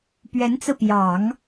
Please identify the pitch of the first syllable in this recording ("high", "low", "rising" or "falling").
rising